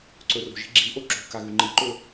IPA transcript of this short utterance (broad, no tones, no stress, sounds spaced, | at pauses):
ǀ ɵ r o̤ ʒ i̤ ɡ͡ǁ i ʔ o ǁ o̤ k a ɣ ʉ ŋ͡ǃ i ǃ ɵ